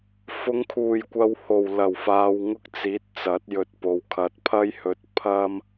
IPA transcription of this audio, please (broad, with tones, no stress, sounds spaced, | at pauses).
f ʊ˨˧ ŋ kʰ uː˨˩ j kʷ ɐ˨ w h o˨˩ w l ɐ˨˩ w f aː˨ w ŋ ʊ˧ k̚ t͡s iː˨˥ t̚ t͡s ɐ˨˥ t̚ j ɵ˧ t̚ p o˨ w kʰ ɐ˨ t̚ pʰ ɐ˥ j h ɵ˧ t̚ pʰ ɐ˧ m